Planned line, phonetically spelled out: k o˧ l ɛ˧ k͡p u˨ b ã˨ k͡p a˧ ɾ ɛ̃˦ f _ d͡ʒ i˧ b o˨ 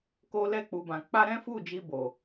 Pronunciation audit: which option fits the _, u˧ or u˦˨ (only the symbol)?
u˦˨